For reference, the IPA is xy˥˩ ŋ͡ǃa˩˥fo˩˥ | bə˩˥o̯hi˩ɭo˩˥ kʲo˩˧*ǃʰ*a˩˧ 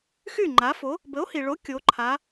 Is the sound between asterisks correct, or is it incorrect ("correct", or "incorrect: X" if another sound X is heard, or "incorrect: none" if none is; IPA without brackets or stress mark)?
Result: correct